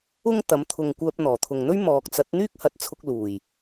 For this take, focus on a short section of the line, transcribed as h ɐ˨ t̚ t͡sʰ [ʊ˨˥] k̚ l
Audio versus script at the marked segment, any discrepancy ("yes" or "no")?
yes